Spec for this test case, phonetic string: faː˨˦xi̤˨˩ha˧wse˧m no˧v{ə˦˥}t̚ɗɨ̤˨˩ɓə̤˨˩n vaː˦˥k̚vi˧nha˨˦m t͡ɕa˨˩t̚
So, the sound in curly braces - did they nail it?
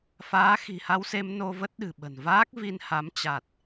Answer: yes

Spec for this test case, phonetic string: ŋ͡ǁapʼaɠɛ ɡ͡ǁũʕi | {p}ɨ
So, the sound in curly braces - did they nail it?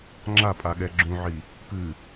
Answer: yes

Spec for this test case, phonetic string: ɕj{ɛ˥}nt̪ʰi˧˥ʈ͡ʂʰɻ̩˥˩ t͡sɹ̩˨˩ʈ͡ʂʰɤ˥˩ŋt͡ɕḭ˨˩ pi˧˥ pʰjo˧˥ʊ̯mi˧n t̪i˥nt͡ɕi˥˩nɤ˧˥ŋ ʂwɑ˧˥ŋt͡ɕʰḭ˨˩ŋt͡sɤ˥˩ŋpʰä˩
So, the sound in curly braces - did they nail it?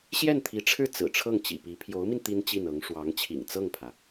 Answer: no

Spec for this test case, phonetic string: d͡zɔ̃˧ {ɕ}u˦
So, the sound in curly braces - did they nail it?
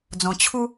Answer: no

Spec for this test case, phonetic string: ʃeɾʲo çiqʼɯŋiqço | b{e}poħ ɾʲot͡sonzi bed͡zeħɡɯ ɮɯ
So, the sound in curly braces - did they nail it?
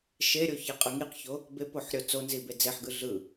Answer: yes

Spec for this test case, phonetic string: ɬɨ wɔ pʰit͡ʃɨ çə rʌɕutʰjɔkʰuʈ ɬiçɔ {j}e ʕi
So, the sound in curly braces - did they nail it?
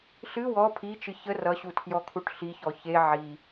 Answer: no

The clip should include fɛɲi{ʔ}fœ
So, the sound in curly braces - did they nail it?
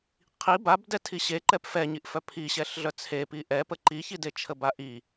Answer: yes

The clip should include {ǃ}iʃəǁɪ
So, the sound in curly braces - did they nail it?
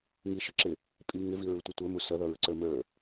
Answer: no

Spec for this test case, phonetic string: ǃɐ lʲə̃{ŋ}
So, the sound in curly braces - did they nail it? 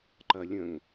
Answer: yes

